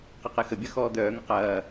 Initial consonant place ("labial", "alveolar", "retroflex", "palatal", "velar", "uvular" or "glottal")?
uvular